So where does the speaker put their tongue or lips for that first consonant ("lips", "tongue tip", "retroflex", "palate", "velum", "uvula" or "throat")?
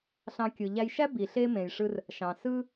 tongue tip